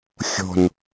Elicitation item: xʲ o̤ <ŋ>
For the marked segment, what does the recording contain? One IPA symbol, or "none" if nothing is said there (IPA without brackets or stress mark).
n